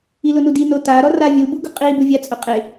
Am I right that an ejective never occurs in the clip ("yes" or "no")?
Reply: no